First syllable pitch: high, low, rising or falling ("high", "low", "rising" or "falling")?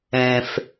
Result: low